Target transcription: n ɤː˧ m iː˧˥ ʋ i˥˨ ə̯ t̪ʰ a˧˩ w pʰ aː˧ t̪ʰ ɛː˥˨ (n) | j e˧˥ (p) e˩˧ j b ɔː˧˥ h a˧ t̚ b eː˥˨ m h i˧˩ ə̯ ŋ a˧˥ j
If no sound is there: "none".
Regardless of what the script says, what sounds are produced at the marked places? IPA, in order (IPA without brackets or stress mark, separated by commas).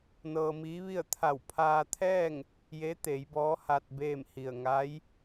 ŋ, t̪